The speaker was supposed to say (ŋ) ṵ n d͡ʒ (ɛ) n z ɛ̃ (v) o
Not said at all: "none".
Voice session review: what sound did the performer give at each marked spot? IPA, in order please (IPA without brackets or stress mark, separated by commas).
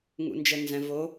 ŋ, ɛ, v